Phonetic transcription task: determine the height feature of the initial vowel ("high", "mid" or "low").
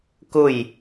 high